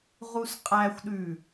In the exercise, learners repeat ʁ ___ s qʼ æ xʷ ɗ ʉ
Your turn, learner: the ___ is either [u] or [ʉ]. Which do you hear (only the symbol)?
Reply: u